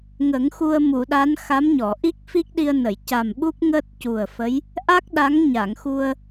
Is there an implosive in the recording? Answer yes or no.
yes